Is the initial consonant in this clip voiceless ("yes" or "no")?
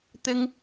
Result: yes